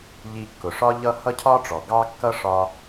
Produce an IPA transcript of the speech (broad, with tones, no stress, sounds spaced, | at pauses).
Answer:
ʎ i˧ kː ʊ˨ ʂ ɒ˦ ʎ ʌ˦ h ʌ˦ cʰ ɒ˦ ʈ͡ʂ ɔ˨ ɡ ɑ˦ kː ʌ˦ ʂ ɒ˦